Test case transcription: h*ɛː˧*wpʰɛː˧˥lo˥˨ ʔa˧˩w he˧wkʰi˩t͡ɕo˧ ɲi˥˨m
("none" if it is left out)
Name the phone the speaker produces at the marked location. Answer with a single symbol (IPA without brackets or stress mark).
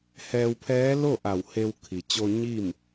ɛː˧